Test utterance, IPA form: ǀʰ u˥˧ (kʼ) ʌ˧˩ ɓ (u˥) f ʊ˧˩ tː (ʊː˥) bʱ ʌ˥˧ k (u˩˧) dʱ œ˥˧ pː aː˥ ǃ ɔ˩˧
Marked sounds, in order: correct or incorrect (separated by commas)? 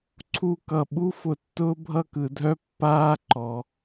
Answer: incorrect, correct, correct, incorrect